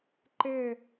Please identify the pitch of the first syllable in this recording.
falling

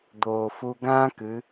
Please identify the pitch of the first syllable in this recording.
low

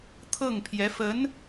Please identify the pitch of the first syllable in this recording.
falling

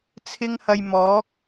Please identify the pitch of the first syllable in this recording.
high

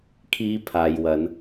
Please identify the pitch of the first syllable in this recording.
high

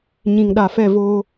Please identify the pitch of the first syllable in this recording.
low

